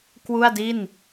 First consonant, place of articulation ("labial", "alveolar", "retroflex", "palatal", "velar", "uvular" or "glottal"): velar